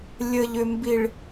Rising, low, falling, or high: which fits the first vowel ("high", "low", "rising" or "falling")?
low